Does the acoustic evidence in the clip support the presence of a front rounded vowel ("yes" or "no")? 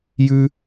no